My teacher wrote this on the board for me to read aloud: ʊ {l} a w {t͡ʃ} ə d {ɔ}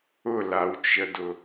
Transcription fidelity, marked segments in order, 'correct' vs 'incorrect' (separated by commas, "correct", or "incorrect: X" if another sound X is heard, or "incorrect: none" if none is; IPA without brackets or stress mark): correct, correct, incorrect: ʊ